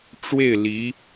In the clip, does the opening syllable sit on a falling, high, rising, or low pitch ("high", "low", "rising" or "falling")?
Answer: falling